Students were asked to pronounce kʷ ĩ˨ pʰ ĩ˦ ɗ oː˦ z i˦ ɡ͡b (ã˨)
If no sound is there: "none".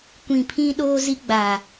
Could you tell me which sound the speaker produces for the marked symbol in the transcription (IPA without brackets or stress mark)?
a˨